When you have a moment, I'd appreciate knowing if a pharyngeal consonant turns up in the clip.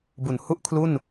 no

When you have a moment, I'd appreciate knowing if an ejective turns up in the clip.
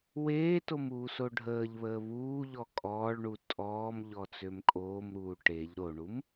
yes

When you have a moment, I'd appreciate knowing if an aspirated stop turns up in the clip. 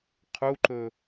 yes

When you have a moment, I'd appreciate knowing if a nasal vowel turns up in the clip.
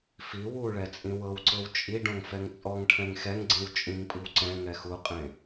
yes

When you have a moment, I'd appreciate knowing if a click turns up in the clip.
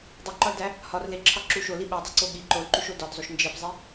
yes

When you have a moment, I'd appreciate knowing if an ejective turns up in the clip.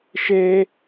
no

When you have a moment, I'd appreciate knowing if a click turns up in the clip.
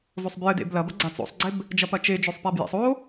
yes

